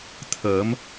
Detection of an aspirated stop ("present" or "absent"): present